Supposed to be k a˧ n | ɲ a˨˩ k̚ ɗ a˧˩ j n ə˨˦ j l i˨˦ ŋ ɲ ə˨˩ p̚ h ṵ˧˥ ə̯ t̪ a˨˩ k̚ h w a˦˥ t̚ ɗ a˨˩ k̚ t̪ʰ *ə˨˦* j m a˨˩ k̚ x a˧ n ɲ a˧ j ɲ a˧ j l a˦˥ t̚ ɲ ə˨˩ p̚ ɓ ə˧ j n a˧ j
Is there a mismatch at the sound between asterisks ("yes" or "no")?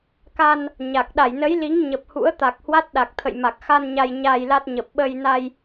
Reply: yes